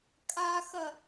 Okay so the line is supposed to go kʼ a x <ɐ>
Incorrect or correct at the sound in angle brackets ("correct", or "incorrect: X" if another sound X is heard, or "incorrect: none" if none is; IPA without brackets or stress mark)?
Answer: correct